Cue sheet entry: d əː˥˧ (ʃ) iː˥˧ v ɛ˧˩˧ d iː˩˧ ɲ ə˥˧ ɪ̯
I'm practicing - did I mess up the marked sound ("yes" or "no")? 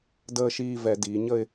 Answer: no